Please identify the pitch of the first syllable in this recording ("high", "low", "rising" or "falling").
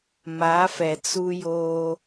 rising